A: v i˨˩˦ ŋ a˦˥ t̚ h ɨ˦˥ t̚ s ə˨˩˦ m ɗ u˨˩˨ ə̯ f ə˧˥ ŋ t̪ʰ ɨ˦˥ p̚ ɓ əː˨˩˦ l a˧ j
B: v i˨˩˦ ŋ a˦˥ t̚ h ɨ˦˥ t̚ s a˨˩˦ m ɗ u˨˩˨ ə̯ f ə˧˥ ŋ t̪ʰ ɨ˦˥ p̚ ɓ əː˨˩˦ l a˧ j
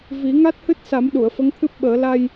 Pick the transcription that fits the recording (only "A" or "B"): B